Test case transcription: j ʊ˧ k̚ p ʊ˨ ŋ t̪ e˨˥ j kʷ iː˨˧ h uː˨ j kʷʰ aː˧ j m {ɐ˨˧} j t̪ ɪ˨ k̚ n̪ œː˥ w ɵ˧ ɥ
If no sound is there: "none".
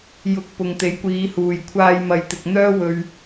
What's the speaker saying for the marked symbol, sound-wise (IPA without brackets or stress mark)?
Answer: ɐ˨